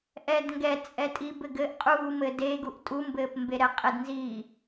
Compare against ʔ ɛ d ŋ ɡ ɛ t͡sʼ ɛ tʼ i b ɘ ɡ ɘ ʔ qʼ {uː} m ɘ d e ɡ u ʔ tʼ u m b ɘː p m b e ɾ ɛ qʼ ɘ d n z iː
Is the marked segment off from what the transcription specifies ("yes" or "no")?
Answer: no